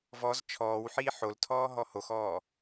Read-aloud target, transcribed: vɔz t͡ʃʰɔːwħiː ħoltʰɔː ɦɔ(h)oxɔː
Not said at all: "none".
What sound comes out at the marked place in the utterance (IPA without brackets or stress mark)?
h